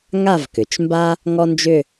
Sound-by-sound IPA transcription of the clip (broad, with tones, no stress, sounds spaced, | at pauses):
ŋ a˥˧ v k ʏ˩˧ t͡ʃ m b a˥ | ŋ ɔ˥ n d͡ʒ ʏ˥˧